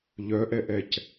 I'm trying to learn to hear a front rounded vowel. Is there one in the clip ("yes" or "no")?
yes